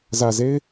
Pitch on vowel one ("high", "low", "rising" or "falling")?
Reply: low